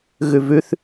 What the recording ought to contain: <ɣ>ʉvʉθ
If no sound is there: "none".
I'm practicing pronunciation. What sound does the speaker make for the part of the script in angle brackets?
ɣ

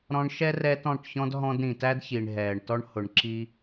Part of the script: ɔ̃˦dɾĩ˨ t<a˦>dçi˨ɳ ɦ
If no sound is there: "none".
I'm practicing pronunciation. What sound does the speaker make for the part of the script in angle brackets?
æ˦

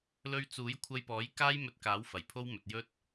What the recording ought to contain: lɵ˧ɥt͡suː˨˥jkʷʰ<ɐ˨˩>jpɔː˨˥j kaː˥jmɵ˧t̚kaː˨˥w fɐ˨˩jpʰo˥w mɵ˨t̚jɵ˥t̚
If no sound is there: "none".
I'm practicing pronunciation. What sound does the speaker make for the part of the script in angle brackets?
ɐ˧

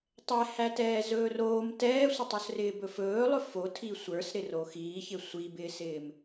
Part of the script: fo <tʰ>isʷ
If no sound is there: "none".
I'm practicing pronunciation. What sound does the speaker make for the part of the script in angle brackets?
tʰ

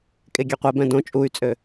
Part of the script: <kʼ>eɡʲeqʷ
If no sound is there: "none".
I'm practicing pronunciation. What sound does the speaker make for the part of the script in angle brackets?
kʼ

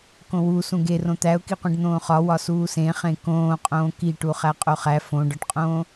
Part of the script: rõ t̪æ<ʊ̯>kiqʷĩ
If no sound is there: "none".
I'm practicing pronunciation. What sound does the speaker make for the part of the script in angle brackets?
ʊ̯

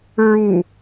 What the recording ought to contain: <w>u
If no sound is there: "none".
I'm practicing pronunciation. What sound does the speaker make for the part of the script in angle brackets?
ɹ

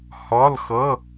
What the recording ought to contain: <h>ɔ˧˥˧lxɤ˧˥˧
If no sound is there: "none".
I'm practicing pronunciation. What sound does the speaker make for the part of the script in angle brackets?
h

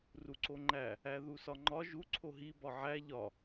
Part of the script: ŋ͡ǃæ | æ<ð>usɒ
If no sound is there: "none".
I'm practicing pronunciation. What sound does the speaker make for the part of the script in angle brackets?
ð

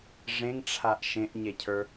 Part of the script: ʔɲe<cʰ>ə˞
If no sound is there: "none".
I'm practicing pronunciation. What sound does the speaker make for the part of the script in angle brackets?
cʰ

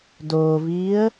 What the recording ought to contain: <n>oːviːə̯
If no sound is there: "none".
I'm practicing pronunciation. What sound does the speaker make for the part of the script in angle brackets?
d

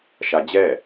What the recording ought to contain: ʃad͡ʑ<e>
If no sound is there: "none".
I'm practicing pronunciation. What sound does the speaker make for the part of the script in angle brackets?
ɛ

